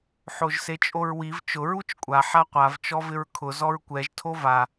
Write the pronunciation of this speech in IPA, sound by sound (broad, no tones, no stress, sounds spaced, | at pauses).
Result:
ħ o ʒ s e t͡ʃʼ o ɹ w i v t͡ʃ ʊ ɹ u t͡ʃ kʷʼ a ħ a qʷ a v t͡ʃ ɔ v ɪ ɹ kʰ ʊ z ɔ ɹ kʷ ɛ ʒ tʰ o v a